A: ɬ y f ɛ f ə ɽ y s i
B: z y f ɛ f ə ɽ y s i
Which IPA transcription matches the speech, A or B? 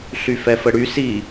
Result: A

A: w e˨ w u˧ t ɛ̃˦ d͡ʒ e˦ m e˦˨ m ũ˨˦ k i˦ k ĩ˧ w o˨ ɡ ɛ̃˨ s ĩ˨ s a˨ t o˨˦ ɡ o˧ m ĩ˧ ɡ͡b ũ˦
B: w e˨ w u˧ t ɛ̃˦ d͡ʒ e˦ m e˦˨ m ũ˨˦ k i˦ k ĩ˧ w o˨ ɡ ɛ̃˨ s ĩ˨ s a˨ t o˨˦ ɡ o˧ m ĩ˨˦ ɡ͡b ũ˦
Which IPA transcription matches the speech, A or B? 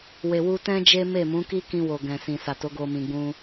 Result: A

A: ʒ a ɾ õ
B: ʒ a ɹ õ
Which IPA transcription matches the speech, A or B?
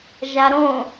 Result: A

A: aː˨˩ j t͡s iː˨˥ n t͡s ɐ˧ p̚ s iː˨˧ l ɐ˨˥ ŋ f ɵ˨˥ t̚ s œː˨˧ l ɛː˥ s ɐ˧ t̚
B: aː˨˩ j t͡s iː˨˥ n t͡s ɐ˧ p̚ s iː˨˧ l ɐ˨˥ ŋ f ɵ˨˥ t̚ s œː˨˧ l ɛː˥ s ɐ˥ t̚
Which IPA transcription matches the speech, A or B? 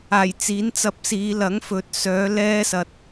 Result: A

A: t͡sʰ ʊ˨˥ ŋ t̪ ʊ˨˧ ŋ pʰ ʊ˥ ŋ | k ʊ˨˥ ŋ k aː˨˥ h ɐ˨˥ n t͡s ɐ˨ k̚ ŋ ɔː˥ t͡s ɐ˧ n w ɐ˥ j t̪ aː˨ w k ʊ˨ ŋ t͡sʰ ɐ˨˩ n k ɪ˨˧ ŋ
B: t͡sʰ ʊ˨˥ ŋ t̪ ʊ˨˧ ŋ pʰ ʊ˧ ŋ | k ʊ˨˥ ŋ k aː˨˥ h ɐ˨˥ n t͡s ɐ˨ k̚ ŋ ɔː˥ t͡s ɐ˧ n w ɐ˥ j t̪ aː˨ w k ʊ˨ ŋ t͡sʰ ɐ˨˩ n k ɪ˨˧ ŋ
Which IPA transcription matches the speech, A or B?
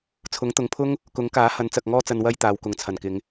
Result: A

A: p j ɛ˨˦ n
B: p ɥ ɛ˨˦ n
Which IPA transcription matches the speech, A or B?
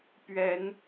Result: B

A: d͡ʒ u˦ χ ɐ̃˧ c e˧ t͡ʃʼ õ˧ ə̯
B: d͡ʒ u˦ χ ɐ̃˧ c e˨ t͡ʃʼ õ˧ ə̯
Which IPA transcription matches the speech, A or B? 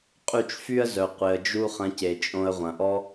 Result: B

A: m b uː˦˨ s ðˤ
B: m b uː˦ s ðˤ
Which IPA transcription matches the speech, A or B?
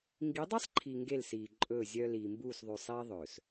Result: A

